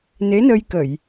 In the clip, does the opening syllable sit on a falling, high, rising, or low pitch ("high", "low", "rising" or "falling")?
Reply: rising